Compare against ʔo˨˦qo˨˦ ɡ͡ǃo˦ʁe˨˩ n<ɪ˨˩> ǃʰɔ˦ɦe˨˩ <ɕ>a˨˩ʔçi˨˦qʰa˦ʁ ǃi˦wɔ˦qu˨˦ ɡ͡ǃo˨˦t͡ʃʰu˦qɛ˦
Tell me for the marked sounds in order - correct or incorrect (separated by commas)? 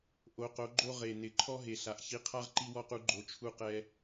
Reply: correct, incorrect